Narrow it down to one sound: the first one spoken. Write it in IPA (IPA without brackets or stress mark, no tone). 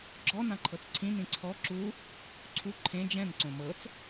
ɡ͡ǁ